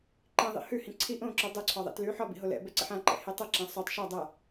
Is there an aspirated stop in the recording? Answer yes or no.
yes